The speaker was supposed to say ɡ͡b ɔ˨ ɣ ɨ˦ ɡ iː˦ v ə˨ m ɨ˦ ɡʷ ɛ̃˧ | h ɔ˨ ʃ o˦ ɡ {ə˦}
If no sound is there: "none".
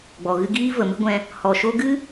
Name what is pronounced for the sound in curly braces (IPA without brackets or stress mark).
ɨ˦